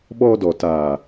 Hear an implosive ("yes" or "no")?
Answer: yes